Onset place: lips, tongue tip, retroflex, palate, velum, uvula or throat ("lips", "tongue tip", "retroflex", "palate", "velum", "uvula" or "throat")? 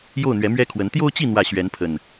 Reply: palate